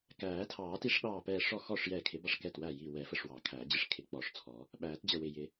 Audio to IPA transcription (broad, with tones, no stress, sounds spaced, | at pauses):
k æː˨˩˦ tʰ ɑː˨˩˦ t i˨˩˦ ʂ ɗ ɑː˧˩ p ɛː˧˩ ʂ ɔ˧˩ x ɔ˧˩ ʂ j ɛː˧˩ kʰ ɪ˨˩˦ b ɑ˧˩ ʂ k ɛ˧˩ t w æ˧˩ j i˧˩ w ɛ˨˩˦ f ə˧˩ ʂ w ɑ˨˩˦ kʰ æ˨˩˦ d͡ʑ ɪ˧˩ ʂ kʰ ɪ˨˩˦ k͡p ɔ˨˩˦ ʂ t͡sʰ ɔ˨˩˦ | ɓ æː˨˩˦ t d͡ʑ ə˧˩ w ɪ˧˩ j ɪ˨˩˦